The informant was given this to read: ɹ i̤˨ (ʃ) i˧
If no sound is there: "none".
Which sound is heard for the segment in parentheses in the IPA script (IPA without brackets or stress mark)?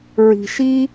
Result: ʃ